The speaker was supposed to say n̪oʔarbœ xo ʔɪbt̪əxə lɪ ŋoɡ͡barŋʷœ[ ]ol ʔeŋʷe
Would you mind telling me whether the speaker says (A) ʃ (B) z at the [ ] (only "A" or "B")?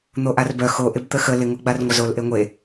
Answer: B